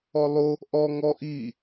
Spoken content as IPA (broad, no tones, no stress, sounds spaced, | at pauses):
ɔ lˠ o | ʔ ɔ ŋ ɔ ʔ i